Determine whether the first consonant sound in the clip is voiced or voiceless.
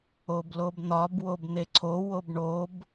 voiced